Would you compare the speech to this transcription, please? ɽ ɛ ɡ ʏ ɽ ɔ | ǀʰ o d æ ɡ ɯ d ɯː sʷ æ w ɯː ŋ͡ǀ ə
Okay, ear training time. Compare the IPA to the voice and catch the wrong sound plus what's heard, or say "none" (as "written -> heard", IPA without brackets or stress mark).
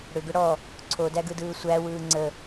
ɛ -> ʏ